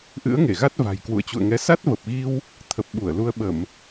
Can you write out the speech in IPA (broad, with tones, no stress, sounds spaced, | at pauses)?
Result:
ʔ ɨ̰˧˥ ə̯ ŋ e˧˩ ɣ a˦˥ t̚ v a̤˨˩ j k w ṵ˧˨ ə̯ t͡ɕ ṵ˧˨ ə̯ ŋ ɛ˨˦ s a˦˥ t̚ v ə˨˩ p̚ ɣ i˧ w | t̪ʰ ə˨˩ p̚ ɓ u˧˩ ə̯ l u˧ ə̯ ɓ ə˧˩˨ m